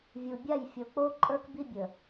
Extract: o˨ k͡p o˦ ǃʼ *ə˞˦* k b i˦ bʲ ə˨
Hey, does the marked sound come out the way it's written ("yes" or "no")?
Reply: yes